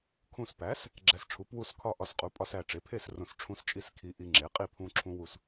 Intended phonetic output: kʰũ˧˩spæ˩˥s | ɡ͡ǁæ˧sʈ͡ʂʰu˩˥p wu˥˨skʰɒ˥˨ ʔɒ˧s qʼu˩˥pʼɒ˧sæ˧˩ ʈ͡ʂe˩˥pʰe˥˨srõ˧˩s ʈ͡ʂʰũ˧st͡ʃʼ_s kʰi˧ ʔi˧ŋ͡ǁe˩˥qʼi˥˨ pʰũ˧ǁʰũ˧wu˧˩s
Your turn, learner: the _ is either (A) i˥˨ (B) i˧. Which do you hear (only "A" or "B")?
B